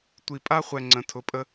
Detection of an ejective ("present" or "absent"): present